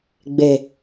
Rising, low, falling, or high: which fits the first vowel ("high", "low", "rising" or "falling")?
low